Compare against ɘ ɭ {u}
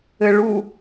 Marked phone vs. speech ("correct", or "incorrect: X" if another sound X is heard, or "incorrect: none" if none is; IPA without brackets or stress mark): correct